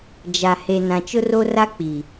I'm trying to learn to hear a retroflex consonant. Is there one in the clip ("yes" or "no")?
no